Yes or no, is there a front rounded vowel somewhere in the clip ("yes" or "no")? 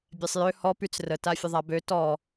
yes